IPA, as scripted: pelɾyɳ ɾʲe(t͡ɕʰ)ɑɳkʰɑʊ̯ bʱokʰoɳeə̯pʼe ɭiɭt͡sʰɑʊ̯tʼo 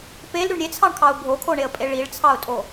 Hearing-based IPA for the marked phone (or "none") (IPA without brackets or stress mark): t͡sʰ